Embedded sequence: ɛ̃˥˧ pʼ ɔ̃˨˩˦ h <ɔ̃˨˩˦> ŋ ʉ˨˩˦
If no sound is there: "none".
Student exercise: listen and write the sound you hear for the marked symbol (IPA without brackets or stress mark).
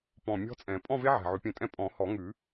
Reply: ɔ˨˩˦